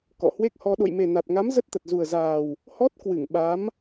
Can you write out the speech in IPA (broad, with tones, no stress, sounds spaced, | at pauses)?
k ɔ̰˧˨ h w e˦˥ k̚ h ɔ˧ ɗ o̰˧˨ j m e˨˩ n a˨˩ t̚ ŋ a˨˦ m z ə˦˥ t̚ t̪ ə˨˩ t̚ z u˨˩ ə̯ z aː˨˩ w | h ɔ˦˥ t̚ k w ɨ˧˩ ŋ ɓ a˨˦ m